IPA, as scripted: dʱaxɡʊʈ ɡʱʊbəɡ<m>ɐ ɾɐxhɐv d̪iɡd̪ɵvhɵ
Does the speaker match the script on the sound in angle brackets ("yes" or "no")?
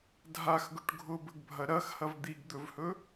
no